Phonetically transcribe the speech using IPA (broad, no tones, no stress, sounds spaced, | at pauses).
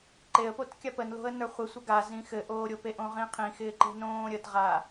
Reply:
ǃ e ə̯ p o t kʲ a p ə n l o̤ ə̯ n ə˞ χʷ ɪ sʷ ə ɡ a z ĩ x ɘ ʔ oː ɾʲ o p e ʔ õ ʁ ĩ qʰ ĩ x ɪː ǃ e̤ n õː ɾʲ ə t ʁ a